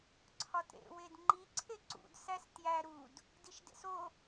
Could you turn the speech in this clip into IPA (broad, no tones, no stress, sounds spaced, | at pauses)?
ǀʰ ɒ t ɾ ḛ w e d ŋ͡ǃ i ǀʰ e ǀ ṵ d s æ s t j æ ɾ u d | d i ʃ d ḛ s o